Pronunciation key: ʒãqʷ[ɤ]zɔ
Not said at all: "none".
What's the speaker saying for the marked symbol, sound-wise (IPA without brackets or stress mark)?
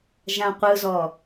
ɯ